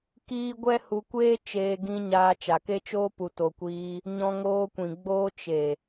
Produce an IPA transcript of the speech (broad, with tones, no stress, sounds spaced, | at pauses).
k iː˦ ɡʷ ɛ˦ h u˧ kʷ eː˦ t͡ʃ eː˧ ɡ ĩ˧ ɲ aː˧ t͡ʃ a˨ k e˦ t͡ʃ oː˦ p u˨ t o˨ kʷ iː˧ | ɲ ɔ̃˧ ŋ oː˧ kʷ ĩ˨ ɡ͡b oː˧ t͡ʃ e˨